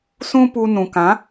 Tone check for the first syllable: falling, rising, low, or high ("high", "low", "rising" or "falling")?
high